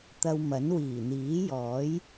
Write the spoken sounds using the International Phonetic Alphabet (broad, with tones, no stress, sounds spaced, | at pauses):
t̪ ɐ˧ w m ɐ˨˥ n w iː˨˩ n̪ iː˨˥ j ɔː˨˥ j